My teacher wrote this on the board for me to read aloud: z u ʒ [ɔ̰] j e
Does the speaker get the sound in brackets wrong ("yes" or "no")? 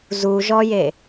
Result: yes